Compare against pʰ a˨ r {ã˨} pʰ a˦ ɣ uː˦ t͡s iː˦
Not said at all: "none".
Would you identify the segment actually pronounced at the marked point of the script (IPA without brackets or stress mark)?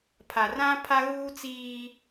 ã˦